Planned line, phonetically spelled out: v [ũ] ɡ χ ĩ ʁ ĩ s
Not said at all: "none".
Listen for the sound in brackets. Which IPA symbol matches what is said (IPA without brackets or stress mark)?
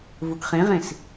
u